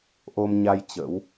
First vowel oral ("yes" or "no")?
yes